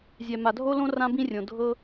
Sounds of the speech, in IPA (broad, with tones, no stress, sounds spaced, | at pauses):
zʲ ɛ˨ m a˨ dʱ o˦ l õ˦ r ã˦ b ĩ˦ rʲ õ˨ dʱ ɤ˦